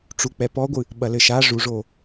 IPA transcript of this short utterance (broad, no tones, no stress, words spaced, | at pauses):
ʈ͡ʂuk͡pɛpɔɡʷɨ | ɓɐlɘʃa ʐuʐo